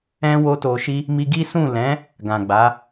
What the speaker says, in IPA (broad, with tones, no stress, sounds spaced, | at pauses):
ɛ̃˦ w o˦ t o˧ ʃ i˦ | m i˧ ɡ i˦ s ũ˦˨ l ɛ̃˨˦ | ɡ ã˨ ɡ͡b a˨˦